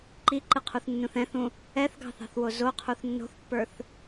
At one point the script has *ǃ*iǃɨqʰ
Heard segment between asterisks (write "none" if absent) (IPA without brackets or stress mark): ǃ